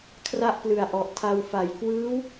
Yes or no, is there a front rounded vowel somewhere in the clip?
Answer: no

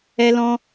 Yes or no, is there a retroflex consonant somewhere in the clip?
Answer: no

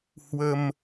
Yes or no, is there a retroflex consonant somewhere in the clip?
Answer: no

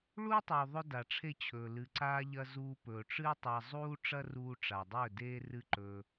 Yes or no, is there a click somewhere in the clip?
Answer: yes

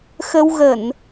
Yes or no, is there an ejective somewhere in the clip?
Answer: no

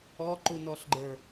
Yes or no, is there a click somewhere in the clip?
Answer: yes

